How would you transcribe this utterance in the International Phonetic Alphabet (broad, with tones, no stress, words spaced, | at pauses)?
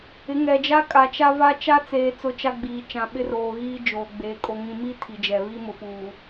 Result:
ɪ˨˦ŋɛ˨d͡ʒa˦ kʼa˨t͡ʃa˦va˦ t͡ʃa˦t͡seː˨ t͡sʊ˦t͡ʃa˦ɡ͡biː˨ t͡ʃã˨ɓɪ˦roː˨ ɣiː˦d͡ʒoː˨ɡ͡beː˨ kʼo˨ŋĩ˨mi˦ tʰi˨d͡ʒɛ˨βi˦ mʊ˨puː˨